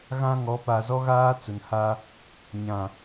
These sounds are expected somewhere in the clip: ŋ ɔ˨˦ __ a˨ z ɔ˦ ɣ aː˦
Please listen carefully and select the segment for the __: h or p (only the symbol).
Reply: p